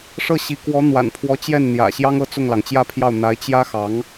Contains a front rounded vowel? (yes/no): no